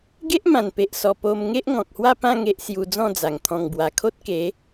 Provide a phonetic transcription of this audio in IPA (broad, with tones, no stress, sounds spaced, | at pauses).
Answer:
ɡ e˦ ʔ m ã˨˩ n p e˨ ʔ s ɔ˨˩ p o˧ m ŋ e˦ ʔ ŋ ɔ̃˨ k̚ h w a˥˧ p ã˥˧ ŋ e˦ ʔ s j u˧ d͡z ɔ̃˥˧ d͡z a˨˩ ŋ t̪ʰ ɔ̃˨˩ ŋ b w a˨˩ kʰ o˦ t̚ k e˨˦